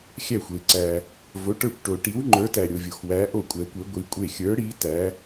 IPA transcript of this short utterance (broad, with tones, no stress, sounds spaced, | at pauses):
xʲ æ˥˩ xʷ e˧ ǀ æ˧ | v o˧˥ ʈ ə˞˥˩ kʷ ʈ o˧ ʈ i˧˥ w ŋ͡ǃ ə˞˧˥ t æ˧ ɾʲ o˧ vʲ o˧ x w æ˧˥ ʔ o˥˩ kʷʼ ɛ˧˥ kʷ e˧˥ ɡʷ i˧˥ kʷʼ e˥˩ xʲ ə˞˧˥ ɽ i˧˥ t æ˧˥